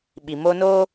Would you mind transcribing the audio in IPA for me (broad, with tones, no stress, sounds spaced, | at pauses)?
ɓ i˨ m oː˦ n oː˦